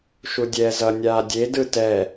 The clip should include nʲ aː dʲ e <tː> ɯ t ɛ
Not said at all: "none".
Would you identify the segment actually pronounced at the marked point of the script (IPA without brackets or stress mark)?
d